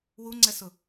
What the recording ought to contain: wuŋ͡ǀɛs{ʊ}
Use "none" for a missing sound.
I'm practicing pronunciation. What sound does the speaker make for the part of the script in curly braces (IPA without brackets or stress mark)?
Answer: ʊ